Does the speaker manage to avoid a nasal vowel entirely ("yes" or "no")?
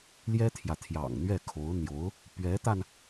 yes